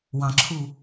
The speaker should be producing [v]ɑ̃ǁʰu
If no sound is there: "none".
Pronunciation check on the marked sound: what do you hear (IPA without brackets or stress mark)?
w